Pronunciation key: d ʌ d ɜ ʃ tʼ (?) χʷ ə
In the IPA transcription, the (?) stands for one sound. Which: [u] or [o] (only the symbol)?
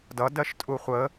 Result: u